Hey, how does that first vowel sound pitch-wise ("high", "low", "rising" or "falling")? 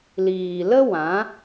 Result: low